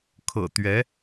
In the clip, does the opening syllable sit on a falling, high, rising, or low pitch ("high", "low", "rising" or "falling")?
low